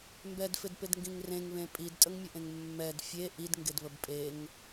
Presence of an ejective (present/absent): present